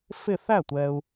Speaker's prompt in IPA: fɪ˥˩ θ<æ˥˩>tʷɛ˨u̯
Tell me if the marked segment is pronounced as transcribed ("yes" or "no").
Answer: yes